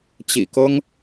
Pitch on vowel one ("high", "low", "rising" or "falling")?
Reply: low